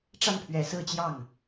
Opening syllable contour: falling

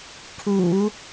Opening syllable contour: low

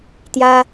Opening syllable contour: high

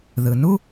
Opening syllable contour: low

